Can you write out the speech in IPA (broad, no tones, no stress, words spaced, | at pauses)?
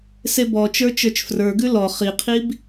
sebɔt͡ʃə˞ t͡ʃə˞t͡ʃfrə˞ɡʉ lɔ χiqʰib